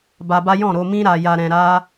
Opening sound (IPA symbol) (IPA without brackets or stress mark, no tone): b